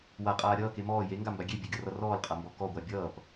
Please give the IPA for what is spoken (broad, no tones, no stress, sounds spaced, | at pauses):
w a qʼ aː ɾʲ ʌː k e m ɔː j e ŋ ɡ a m b a ɡʲ e bʲ e ɡʲ ʌ r ʌ r ɔː l qʼ a m b ɔ k ɔ ɡʷ a bʲ ʌː p